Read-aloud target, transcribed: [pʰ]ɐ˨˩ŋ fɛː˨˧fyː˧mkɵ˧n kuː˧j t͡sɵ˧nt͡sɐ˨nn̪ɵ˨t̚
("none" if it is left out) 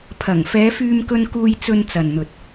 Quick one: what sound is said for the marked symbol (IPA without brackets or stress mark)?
pʰ